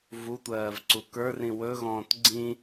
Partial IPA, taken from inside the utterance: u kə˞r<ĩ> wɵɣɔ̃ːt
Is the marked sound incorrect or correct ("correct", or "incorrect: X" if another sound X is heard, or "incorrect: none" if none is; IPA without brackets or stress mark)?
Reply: correct